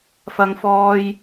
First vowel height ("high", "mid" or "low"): low